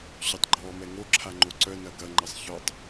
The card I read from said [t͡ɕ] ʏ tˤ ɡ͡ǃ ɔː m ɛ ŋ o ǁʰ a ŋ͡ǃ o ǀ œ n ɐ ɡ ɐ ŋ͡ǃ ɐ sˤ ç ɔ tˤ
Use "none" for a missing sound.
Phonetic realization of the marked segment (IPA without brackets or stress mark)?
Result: ɕ